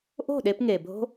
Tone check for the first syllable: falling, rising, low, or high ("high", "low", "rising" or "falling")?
falling